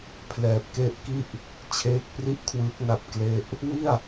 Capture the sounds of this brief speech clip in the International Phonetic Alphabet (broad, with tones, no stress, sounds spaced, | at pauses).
pʰ l ɛː˨˩ p̚ k e˦˥ ʔ k i˥˩ ʔ | t͡ɕʰ eː˦˥ k̚ p r i˥˩ ʔ kʰ w ɯː˦˥ k̚ n a˥˩ p̚ k l e˥˩ ʔ | w i˥˩ a̯